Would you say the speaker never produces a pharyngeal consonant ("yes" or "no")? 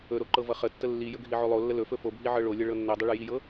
no